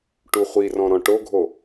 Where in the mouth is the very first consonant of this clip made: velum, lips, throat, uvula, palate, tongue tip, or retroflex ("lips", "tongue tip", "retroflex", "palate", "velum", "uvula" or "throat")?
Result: retroflex